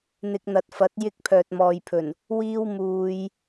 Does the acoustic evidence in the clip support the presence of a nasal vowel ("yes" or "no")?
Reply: no